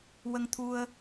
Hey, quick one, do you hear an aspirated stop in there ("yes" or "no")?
yes